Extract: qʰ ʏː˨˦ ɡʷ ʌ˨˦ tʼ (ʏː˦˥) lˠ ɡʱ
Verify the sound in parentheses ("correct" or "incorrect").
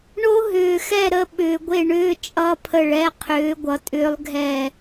correct